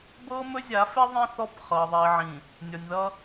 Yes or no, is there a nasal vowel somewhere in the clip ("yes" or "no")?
yes